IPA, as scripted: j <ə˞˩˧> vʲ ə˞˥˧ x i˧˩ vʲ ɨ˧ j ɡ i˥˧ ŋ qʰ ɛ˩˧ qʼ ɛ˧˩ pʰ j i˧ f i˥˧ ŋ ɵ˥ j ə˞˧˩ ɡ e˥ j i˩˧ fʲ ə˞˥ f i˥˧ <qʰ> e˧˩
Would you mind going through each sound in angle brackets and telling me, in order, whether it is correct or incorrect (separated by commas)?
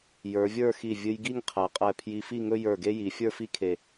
correct, incorrect